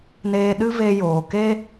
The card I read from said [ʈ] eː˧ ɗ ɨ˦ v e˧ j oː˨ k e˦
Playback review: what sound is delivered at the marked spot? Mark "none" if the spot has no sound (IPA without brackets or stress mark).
n